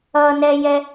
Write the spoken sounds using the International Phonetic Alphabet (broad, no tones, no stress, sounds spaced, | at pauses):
ʌ n ɛ j ɛ